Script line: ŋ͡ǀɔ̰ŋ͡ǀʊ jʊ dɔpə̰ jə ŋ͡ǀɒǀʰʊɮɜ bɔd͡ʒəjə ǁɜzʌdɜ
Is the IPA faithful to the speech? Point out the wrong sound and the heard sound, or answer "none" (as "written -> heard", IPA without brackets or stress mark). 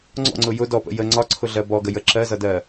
d͡ʒ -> ɡ